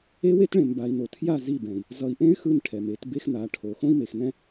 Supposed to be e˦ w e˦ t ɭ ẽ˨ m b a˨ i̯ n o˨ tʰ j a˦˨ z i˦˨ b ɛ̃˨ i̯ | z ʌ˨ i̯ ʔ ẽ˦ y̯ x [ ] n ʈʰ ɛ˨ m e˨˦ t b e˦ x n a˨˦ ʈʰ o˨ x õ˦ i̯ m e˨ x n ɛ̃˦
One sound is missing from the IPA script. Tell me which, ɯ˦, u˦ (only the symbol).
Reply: ɯ˦